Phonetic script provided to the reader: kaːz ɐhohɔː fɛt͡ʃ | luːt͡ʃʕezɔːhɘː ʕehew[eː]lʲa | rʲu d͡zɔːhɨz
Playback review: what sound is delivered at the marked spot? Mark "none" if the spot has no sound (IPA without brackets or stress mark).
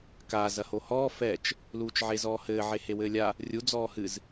ɘː